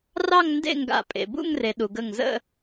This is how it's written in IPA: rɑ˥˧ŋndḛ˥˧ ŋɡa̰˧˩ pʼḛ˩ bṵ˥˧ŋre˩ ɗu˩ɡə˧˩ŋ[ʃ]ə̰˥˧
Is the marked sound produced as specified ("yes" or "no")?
no